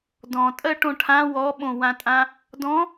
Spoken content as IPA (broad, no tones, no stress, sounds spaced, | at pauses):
d ɔ̃ tʼ ɜ ʈ õ ʈʰ ã w ɔ ɓ õ w ã tʼ ã | d ɔ̃